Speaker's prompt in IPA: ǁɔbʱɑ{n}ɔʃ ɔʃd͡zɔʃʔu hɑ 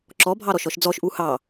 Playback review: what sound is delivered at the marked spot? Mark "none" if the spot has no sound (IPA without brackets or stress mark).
ɾ